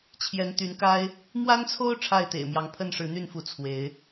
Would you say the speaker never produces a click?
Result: yes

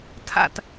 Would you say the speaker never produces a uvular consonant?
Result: yes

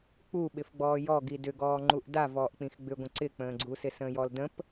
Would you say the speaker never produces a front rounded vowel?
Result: no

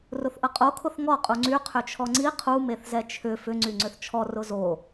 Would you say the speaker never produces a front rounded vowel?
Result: no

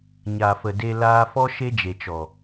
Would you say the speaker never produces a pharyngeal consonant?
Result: yes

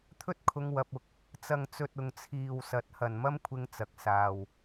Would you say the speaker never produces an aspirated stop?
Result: no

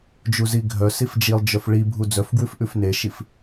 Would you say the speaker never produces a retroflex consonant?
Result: no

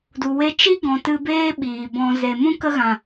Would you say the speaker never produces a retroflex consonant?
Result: yes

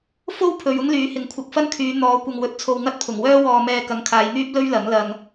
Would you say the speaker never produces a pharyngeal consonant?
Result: yes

